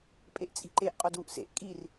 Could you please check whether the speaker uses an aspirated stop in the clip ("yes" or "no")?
no